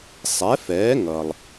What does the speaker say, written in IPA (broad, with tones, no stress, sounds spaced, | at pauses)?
sˤ ɛ˩˥ f ɛː˩˥ ŋ ʌ˩ lˠ